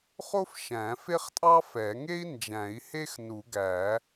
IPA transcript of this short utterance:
χ o˥ f ʃ æ̃˨˩˦ f e˥ χ tʼ ɑ˥ f ɛ˨˩˦ ŋ e˥ i̯ n d͡ʒ æ̃˨˩˦ i̯ h e˥ x n u˨˩˦ ɡ æ˨˩˦

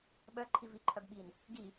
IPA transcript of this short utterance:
ɓ œ ǃʰ i v i ǃʰ œ b ɓ i n | ɡ i

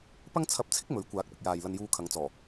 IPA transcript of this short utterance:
p ɐ˥ ŋ t͡sʰ ɐ˧ p̚ t͡sʰ ɪ˥ k̚ m ɵ˨˥ ɥ kʷ aː˨˥ k̚ p ɪ˨ k̚ j aː˨ j l ɐ˧ n j uː˧ kʰ ɐ˨˧ ŋ t͡s ɔː˨˩

